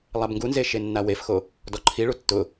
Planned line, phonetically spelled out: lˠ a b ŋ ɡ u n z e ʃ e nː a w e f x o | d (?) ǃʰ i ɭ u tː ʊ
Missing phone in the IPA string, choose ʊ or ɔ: ɔ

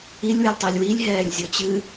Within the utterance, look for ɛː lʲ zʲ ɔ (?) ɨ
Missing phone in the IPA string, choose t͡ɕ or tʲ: t͡ɕ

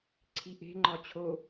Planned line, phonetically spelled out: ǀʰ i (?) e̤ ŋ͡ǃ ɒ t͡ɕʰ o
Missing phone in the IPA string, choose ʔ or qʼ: ʔ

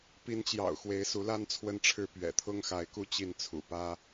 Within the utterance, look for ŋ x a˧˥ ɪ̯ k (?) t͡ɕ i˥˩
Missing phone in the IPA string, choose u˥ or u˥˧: u˥˧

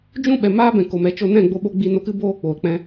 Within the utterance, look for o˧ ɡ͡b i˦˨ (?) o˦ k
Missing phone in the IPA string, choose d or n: n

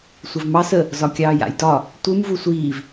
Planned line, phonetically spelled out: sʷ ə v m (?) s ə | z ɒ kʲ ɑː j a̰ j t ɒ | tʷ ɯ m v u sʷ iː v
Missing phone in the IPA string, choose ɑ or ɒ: ɑ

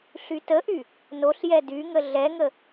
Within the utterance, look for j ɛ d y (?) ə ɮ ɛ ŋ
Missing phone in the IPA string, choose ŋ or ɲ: ŋ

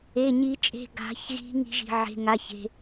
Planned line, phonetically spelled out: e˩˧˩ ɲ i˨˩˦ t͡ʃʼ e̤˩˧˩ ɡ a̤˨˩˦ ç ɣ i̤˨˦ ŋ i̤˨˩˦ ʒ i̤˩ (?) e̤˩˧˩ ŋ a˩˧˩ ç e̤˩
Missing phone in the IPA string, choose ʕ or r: ʕ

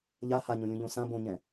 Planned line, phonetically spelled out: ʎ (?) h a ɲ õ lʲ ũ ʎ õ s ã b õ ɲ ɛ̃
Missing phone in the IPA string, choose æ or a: a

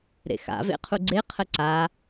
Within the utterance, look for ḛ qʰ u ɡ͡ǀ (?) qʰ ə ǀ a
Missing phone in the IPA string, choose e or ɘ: e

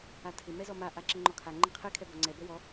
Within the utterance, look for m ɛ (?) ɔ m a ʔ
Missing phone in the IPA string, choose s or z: z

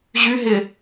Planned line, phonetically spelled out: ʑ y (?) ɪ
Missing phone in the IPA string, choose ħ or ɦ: ɦ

